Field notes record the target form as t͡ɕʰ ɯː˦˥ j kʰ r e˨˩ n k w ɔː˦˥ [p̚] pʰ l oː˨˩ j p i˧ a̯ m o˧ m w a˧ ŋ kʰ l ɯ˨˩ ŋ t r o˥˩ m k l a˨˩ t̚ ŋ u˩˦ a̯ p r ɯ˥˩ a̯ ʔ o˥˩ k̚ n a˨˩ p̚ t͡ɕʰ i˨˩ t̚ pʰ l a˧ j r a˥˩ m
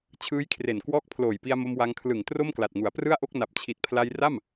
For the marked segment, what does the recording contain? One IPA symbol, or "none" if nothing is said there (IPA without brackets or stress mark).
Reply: k̚